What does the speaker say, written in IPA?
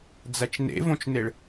d͡z æ t͡ʃ n ḛ v õ t͡ʃ n e ɭ

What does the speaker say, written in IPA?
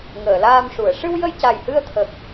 ŋ əː˨˩˨ l aː˧ m ʂ u˨˩˨ ə̯ ʂ ɨ˧ w j ə˧ j c a˨˩ j h ɨ˧ ə̯ t̪ʰ ə˨˩ k̚

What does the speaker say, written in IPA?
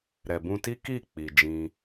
ɾ ɛ˨ b ũ˧ t i˦ k i˦˨ k͡p i˨ d͡ʒ ĩ˧

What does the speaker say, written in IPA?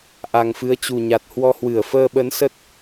ʔ a˨˩ ŋ f ɨ˨˦ ə̯ t͡ɕ u˨˩ ɲ a˨˩ t̚ h w ɔ˧ h w ɨ˧˩ ə̯ f əː˧ ɓ ə˨˦ n s ə˦˥ t̚

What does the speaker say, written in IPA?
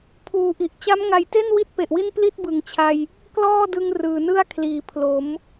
pʰ uː˨˩ ʔ i˨˩ ʔ t͡ɕ a˦˥ m ŋ a˨˩ j t e˥˩ n w i˥˩ t̚ p e˨˩ ʔ w i˥˩ n p l i˥˩ t̚ b ɯ˩˦ ŋ t͡ɕʰ a˧ j | k l ɔː˥˩ d ɯ˧ ŋ r ɯː˨˩ n ɯ˥˩ a̯ kʰ l iː˨˩ pʰ l o˩˦ m

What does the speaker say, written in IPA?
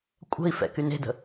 kʷʼ ə̤ i̯ f ɛ̰ k y n e̤ d ə̤

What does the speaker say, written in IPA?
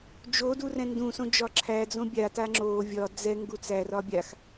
d͡ʒ o d u r ɛ̃ n d ũ s õ d͡ʒ ɒ ǁʰ æ d͡z õ bʲ a t a ŋ͡ǁ o vʲ ɒ d͡z ɛ ŋ ɡ u t͡s æ r ɒ bʲ a x

